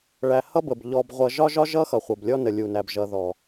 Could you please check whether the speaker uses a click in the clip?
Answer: no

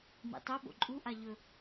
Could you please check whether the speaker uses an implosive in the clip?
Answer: yes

